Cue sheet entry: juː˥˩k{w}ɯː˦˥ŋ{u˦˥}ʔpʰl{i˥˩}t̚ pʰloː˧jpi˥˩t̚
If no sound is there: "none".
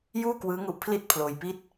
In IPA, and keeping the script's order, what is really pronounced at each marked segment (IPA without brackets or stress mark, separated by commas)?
w, u˦˥, i˥˩